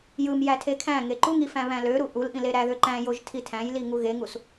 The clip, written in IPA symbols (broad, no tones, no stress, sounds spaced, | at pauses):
j ɯ m j æ tʰ e kʰ æ̃ ŋ e ǃ u ŋ i f æ̃ β æ̃ l ø ɾ u ʔ u l ʔ ĩ l e ɾ æ ð ø ǃ æ̃ j o ʒ tʰ i tʰ æ̃ j l i ŋ u ɣ e ŋ u s